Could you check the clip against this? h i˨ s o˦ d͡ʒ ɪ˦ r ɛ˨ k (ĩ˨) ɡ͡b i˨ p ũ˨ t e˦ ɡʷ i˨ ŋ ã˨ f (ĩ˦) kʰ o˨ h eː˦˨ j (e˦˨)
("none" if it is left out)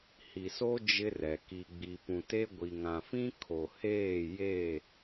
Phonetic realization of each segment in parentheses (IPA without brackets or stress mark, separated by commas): i˨, ĩ˦, e˦˨